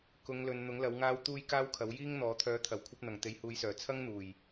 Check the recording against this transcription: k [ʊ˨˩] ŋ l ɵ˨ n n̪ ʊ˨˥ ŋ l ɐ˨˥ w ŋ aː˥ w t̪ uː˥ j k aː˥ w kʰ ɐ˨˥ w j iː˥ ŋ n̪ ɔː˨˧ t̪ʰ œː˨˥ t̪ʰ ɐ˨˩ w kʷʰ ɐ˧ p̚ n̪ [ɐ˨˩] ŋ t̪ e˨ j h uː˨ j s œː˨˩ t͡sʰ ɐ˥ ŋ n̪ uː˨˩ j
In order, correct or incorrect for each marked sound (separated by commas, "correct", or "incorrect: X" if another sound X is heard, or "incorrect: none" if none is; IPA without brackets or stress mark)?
incorrect: ʊ˨˧, correct